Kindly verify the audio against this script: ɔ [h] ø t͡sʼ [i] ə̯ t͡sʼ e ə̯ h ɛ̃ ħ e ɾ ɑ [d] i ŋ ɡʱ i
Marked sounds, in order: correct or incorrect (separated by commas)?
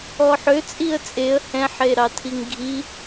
incorrect, correct, incorrect